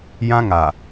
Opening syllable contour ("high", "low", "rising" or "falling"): high